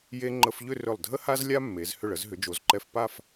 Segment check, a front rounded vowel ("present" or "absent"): present